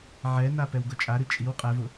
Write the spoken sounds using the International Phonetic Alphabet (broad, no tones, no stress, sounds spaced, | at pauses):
ʕ ɛ n a p ɛ w ɡ ʊ t͡ʃʼ a ɾ ɨ t͡ʃʼ i w qʼ ɛ v ʊ